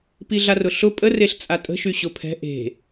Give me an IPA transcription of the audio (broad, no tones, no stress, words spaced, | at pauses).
piɮarʊɬʊ pʼəreɬ t͡sʼatʼə̤ʃy ɕʊpʰɛ̤ ʔe̤